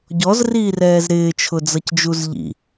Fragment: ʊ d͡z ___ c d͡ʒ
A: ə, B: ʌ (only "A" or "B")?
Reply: B